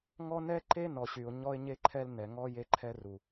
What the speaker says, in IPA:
ŋ ɔ˦ n ɛ˦ ǃ e˦ n ɔ˨ ɕ y˨ ʊ̯ ɲ ɔ˦ ɪ̯ ɲ e˦ ǃʰ ɛ˦ l n ɛ˨ ŋ ɔ˦ j e˦ ǃʰ ɛ˦ r u˨

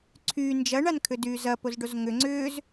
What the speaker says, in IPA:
ǀʰ yː n d͡ʒ ɐ ɳ a n kʰ ʏ d yː z ɐ p o z ɖ o z ŋ ʏ ŋ͡ǀ ʏː z

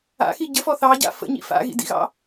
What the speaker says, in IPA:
a̰ x i ɟ ə f ɔ θ ɑ ɟ a̰ f ə̰ ɲ ḭ f a̰ ɣ ḭ d ḭ ɣ ɑ̰

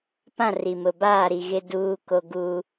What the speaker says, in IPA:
p ã˦˨ r i˨ m ʊ˨ b aː˦˨ ɾ i˨ ɣ ɪ˦ d uː˦ k o˦ ɡ u˦

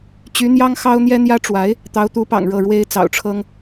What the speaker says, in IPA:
t͡ɕ y˧˥ n̪ j ɑ˥ ŋ x ɑ˥ ʊ̯ n̪ j ɛ˥ n̪ j ä˥ ʈ͡ʂ w a˧˥ ɪ̯ | t̪ ɑ˧˥ ʊ̯ t̪ u˧˥ p ɑ̰˨˩ ŋ ɻ ɤ˥˩ ɻ w e˥ ɪ̯ t͡s ɑ̰˨˩ ʊ̯ ʈ͡ʂʰ ɤ˥ ŋ

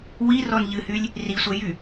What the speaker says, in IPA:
w i r ɔ n ʎ ɨ h y lʲ | r i sʷ ɛ j y

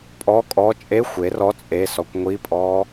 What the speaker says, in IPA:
pʼ ɔ kʼ ɔ t͡ʃʼ e xʷ e r ɔ t͡sʼ e s ɔ kʷ ŋʷ i pʼ ɔ

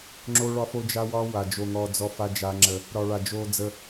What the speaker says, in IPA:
ŋ͡ǁ o˦ ɭ ɒ˦ f o˦ d͡ʒ a˦ w ɒ˦ w a˨ d͡ʒ o˨ ŋ ɔ˨ d͡z ɔ˦ f a˦ d͡ʒ a˦ ŋ͡ǁ ə˦ | ɾ ɒ˨ ɭ a˨ d͡ʒ o˦ d͡z ə˦

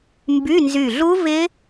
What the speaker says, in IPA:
m b y˧˥˧ n z y˧˩ ɮ u˦˥ v ɪ˦˥

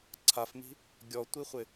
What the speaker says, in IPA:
ǀʰ a f m i̤ | ɡʲ ɔ tʷ i χʷ ɪ

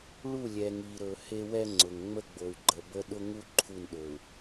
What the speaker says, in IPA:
ɭ u˦˨ lʲ ɛ˨ ŋ i˨ ɾ ɵ˨ h e˦ w ɛ˦ ŋ͡ǀ ʊ˨ ŋ ŋ͡m ə˦ ɡ͡b o˨ y̯ ɡ͡ǃ ə˨ b ə˦ ɗ ʊ˦ ŋ u˦ ǃʰ u˦˨ n ɗ ɵ˨ u̯

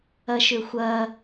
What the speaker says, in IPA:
ɐ ʃ ʏ xʷ ɐ

